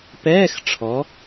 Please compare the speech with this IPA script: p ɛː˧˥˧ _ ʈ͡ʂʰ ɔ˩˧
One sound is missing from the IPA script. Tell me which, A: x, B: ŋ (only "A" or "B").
A